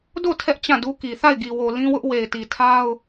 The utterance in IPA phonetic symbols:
d o˦˨ tʰ ɛ˦ ʔ t͡ɕ ã˦˨ d u˦ k i˨ θ a˦˨ ɪ̯ ɡ i˨ w o˨ l ĩ˦ w ʊ˦ ʔ w e˨ ɪ̯ t i˨ tʰ a˦ ʊ̯

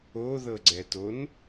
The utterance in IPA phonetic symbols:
o ð ɤ ɡ͡ǀ ɛ t o n

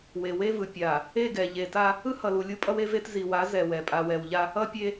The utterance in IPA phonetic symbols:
w e˨ w e˦ v ɯ˨ pʲ a˨ | e˦˨ ɡ ɛ˨ ʎ e˨ t a˦ | ɯ˦ h ʌ˨ l u˨ lʲ u˦ pʼ ʌ˦ w e˦ v e˦ t z i˨ w a˨˦ z ɛ˨ w ɛ˨ pʼ a˨ w ɛ˨ w ʎ a˦ | ʌ˦ pʲ e˦

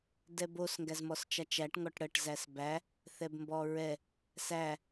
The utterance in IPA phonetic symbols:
d ɛ b o s ŋ ɡ æ z m ɔ s t͡ʃ a t͡ʃ æ ʈ ŋ ɔ ʈ ɽ ə ʈ z æ s b æ | θ ɛ b m b ɔ ɹ ɛ | s æ

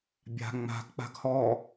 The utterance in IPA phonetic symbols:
bʲ a̤ ŋ͡m a̤ ɡ k͡p a̤ ɡ h ɔ

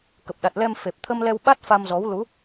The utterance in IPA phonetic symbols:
k ə˨˩ p̚ ɗ a˨˩ t̚ l ɛ˧ m f e˨˩ p̚ t̪ʰ ə˧ m l ɛ˧ w ɓ a˦˥ t̚ f a˧ m z ɔ˨˦ w l u˨˦

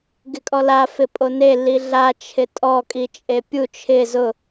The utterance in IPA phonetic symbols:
ɡ ɪ kʼ ɔ l a f ɪ pʼ o n e l i ɮ a t͡ʃʰ ɪ tʼ ɔ kʼ i t͡ʃʼ e pʲ u t͡ʃʰ ɪ z ʊ

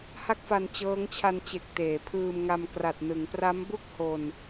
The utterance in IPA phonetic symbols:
h a˥˩ k̚ f a˧ n t͡ɕ ɤː˦˥ ŋ t͡ɕʰ a˧ n t͡ɕ e˨˩ k̚ t eː˩˦ pʰ ɯː˧ m ŋ a˧ m k r a˨˩ t̚ n ɯ˩˦ ŋ p r a˦˥ m b u˥˩ k̚ h o˧ n

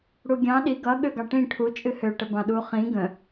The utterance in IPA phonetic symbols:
ɽ u ɡʲ ɑ̃ ɗ i ɡ ʌ ɠ ø ɡ ɑ ʈ ĩ ʈʰ u t͡ʃʼ ɨ h ø ʈ ə b ɑ̃ ɗ u χ ĩ ɡ ə̃

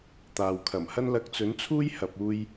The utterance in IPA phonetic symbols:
t̪ aː˨ w kʰ ɐ˨˩ m h ɐ˥ n l ɐ˧ k̚ t͡s ɵ˨˥ n t͡sʰ uː˥ j h ɐ˨ p̚ uː˧ j

